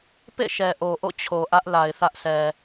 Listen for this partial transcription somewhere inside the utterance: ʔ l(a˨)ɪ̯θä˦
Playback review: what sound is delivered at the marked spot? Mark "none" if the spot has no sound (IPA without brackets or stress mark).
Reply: a˨